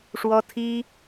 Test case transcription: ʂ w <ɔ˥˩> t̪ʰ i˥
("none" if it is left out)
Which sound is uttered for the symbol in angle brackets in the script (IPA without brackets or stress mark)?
ɔ˥